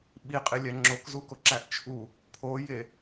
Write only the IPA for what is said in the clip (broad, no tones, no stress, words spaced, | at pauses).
ɓiqʼilʲæ ŋ͡ǁokzukoǁæʔ t͡ʃʰu | pʰoje